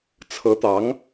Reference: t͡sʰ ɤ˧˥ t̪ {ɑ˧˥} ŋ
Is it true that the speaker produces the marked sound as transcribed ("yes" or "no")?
yes